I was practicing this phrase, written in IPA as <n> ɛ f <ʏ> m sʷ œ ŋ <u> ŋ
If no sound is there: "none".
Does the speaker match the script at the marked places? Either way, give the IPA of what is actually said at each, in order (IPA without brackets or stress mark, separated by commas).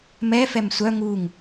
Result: m, ɛ, u